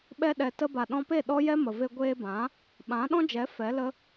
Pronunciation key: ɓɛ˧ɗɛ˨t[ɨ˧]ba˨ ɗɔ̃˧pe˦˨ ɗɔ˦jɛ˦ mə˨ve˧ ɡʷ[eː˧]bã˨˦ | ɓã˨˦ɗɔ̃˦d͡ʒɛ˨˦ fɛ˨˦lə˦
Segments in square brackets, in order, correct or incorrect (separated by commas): incorrect, correct